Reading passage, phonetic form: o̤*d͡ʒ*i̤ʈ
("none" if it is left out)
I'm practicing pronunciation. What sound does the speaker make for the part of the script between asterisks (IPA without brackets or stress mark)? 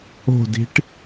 d